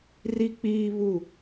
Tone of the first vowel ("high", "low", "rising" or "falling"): high